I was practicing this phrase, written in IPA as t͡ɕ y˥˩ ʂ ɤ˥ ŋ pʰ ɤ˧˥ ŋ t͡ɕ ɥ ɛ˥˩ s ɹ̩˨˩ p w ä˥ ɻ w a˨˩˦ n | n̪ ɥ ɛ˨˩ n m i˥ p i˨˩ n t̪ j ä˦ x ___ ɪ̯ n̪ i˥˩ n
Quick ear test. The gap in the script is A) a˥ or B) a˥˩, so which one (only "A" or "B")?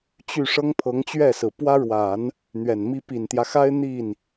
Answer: A